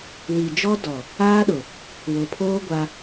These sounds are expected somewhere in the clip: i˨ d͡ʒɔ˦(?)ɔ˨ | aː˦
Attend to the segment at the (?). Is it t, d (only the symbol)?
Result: d